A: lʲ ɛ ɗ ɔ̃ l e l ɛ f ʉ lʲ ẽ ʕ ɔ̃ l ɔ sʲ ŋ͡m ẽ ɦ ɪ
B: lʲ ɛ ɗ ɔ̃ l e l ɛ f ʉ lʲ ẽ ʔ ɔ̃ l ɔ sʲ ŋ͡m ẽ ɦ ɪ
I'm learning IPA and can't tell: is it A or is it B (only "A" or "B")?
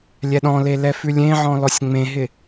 A